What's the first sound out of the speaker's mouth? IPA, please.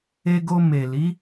e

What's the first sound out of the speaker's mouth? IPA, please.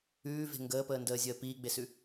ʉː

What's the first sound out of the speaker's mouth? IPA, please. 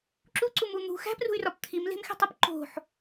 ǁ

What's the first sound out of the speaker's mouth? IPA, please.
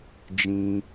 d͡ʒ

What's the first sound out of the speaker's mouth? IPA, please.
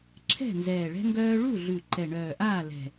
ǁʰ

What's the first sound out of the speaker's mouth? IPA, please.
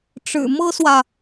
ʈ͡ʂ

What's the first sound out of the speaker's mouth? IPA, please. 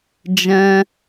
d͡ʒ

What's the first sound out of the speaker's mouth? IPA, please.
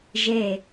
ʒ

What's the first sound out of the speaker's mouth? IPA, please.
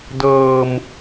d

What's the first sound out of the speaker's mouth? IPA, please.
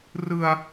r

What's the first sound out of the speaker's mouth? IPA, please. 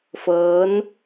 f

